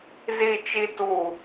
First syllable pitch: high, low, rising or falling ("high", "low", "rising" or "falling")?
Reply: low